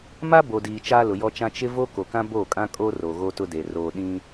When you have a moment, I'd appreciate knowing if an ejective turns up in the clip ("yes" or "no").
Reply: yes